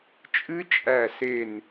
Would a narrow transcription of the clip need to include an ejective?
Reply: yes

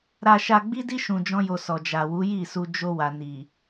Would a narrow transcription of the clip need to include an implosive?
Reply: no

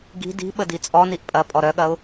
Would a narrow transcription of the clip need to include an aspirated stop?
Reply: no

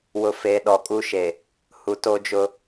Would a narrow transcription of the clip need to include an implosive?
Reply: yes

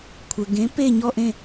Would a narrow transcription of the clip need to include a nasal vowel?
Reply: yes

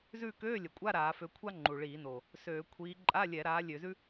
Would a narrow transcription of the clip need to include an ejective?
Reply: yes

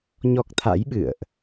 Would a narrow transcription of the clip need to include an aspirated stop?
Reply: yes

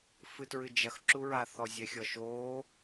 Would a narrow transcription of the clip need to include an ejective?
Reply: no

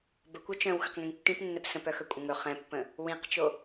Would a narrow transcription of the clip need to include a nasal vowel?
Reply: yes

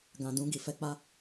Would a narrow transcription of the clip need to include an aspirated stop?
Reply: no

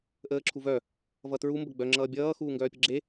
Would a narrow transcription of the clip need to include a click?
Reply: yes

